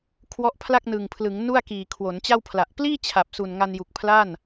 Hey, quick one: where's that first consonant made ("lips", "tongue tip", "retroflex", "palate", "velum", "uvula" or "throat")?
velum